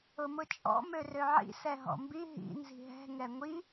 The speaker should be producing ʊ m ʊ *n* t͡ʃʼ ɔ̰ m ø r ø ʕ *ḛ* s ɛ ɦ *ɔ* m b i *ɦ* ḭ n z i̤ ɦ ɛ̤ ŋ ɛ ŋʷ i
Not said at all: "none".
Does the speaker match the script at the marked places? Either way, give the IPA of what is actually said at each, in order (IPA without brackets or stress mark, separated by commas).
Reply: none, ḭ, ɔ̰, ɦ